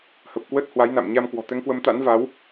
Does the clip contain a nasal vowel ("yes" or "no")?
no